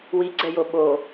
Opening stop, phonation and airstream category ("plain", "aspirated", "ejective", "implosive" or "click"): click